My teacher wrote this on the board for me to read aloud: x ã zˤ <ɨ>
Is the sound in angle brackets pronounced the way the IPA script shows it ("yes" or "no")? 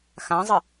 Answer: yes